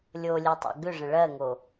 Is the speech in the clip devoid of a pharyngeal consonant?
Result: yes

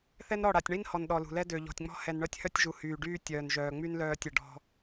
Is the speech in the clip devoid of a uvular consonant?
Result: yes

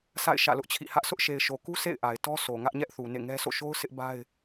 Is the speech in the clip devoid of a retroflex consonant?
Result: yes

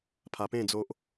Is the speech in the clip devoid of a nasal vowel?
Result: no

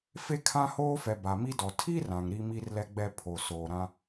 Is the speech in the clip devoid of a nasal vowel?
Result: no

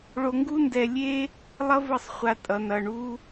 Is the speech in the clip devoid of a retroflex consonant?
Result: no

